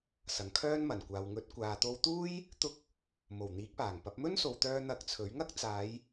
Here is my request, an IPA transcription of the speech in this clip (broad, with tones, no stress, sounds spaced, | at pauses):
s ɐ˨ ŋ kʰ œː˥ n m ɐ˨˩ n kʷ aː˨ w ŋ ɵ˨˥ t̚ kʷ aː˨ t̪ o˧ w t̪ uː˥ j | t̪ ʊ˧ k̚ | m o˨˩ w n̪ iː˨˥ k̚ p aː˨˩ ŋ p ɐ˨˥ p̚ m ɵ˥ n s o˨ w t̪ œː˧ n̪ ɐ˧ k̚ t͡sʰ ɵ˨˥ ɥ ŋ ɐ˥ k̚ t͡s aː˨˧ j